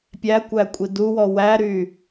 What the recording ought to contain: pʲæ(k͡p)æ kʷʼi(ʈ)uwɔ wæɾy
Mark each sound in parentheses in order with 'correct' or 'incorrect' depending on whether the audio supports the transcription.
incorrect, incorrect

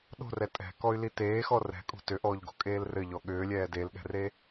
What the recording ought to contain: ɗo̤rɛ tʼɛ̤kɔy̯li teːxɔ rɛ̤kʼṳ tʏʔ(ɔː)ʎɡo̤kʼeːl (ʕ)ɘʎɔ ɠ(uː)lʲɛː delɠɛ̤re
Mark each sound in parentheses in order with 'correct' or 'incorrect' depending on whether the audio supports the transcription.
correct, incorrect, incorrect

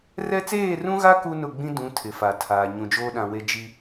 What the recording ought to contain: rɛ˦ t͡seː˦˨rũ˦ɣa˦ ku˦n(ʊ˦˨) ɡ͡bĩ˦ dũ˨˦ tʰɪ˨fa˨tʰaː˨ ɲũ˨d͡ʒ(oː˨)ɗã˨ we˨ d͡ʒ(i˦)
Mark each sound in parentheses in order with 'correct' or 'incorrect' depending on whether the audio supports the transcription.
correct, incorrect, incorrect

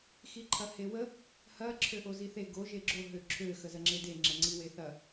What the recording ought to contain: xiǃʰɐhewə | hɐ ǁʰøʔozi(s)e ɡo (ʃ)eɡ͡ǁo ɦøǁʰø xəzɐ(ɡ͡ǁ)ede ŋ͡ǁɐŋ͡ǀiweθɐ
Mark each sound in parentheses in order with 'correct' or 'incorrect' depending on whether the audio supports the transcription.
incorrect, incorrect, incorrect

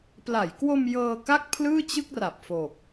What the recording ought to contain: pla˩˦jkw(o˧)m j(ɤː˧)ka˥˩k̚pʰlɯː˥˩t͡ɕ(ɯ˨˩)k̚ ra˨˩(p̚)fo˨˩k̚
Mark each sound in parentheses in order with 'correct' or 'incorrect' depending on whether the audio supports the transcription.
correct, correct, incorrect, correct

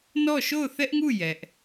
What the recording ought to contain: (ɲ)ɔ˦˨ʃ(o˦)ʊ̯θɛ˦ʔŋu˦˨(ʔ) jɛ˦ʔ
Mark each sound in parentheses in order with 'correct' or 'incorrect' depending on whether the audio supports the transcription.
incorrect, incorrect, incorrect

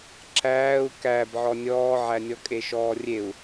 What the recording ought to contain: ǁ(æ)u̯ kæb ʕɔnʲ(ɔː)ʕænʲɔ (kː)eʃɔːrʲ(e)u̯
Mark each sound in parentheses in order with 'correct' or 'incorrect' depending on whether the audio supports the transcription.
incorrect, correct, incorrect, correct

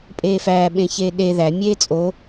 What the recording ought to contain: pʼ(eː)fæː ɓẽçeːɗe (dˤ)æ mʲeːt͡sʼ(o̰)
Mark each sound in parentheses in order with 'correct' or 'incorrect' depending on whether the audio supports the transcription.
correct, incorrect, incorrect

